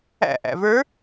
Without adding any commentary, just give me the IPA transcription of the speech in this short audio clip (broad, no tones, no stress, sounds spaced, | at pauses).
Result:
æ̰ ʔ æ̰ v ə˞